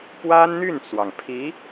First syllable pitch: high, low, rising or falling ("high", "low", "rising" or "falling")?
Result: high